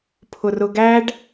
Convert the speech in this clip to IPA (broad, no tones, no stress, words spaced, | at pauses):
pʰʊrʊɡæɖ